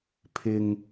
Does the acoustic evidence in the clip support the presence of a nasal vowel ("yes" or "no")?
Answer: no